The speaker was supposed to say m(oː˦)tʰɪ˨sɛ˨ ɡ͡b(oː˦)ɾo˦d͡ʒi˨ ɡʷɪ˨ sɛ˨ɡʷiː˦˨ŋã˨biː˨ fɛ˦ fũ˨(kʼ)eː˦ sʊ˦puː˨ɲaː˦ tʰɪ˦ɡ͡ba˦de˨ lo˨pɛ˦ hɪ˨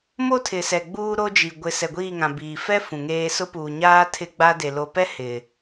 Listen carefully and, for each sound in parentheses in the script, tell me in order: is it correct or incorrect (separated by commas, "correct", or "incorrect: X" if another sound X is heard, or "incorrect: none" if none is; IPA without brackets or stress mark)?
incorrect: o˦, incorrect: uː˦, incorrect: ŋ